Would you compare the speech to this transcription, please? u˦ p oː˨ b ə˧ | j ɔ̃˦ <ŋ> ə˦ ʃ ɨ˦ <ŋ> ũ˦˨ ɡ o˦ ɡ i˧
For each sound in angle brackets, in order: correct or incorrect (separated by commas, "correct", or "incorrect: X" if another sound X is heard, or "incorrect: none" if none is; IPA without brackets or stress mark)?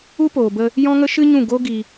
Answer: correct, incorrect: ɲ